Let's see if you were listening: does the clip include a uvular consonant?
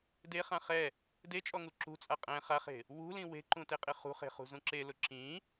yes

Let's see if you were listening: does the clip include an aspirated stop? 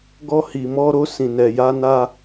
no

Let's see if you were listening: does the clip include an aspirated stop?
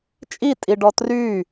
no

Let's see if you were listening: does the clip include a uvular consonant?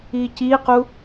yes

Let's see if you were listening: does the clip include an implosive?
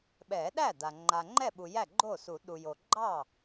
yes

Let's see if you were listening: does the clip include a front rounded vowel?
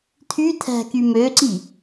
yes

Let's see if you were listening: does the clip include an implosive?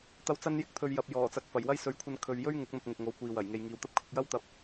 no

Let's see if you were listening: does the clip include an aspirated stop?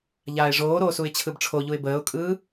yes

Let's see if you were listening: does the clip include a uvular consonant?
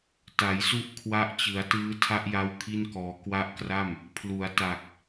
no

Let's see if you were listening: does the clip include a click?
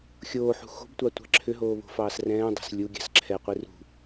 yes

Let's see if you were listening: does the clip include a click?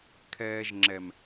yes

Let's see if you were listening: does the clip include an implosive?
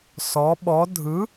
yes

